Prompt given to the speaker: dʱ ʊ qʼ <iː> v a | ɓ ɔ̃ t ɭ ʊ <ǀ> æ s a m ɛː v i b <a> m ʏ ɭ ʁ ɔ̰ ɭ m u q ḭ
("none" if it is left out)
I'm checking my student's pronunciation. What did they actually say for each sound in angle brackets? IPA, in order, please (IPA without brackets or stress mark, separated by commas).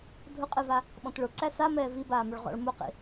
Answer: i, ǀ, aː